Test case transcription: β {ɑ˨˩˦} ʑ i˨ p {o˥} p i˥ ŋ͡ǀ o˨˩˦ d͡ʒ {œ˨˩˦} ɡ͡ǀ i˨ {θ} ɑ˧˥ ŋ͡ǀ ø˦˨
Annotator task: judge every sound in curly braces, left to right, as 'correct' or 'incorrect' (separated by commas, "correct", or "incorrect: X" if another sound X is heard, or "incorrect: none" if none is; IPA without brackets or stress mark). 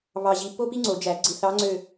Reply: incorrect: ɑ˨, correct, incorrect: æ˨˩˦, correct